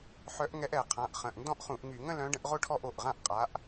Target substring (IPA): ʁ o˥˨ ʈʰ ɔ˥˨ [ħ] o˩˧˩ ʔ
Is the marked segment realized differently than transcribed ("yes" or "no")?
yes